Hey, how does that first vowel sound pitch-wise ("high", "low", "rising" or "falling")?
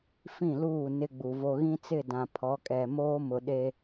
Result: falling